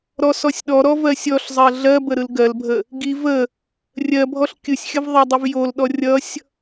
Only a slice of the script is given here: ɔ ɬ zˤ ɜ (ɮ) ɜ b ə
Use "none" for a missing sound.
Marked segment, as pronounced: ɮ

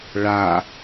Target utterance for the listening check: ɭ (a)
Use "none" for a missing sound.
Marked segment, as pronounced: a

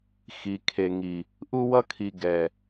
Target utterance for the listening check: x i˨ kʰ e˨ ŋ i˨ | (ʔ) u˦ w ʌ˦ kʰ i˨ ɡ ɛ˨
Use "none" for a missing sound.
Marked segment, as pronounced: ʔ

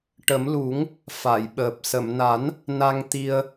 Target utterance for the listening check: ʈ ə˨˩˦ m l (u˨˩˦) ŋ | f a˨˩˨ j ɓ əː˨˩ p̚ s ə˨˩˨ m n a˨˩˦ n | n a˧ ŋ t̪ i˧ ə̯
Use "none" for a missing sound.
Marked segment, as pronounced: u˨˩˦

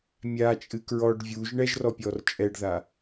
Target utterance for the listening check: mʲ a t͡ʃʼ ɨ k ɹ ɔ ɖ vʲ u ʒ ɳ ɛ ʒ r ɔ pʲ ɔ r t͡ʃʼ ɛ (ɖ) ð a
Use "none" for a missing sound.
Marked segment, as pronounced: ɖ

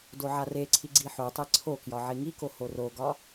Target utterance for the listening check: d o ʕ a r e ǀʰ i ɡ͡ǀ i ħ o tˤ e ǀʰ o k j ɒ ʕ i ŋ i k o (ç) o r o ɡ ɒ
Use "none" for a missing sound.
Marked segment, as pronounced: h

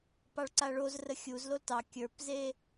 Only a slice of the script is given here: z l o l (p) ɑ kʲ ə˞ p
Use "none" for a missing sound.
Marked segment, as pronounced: t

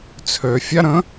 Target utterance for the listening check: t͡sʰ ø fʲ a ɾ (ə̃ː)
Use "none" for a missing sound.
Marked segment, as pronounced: ə̃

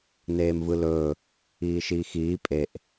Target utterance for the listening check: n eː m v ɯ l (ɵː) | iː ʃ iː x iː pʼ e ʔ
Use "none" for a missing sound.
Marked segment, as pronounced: ɵː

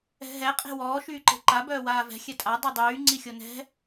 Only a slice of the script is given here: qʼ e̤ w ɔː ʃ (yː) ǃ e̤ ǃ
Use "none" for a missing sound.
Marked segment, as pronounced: yː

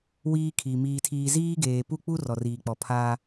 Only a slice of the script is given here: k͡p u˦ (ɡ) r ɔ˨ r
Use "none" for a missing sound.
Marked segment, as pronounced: none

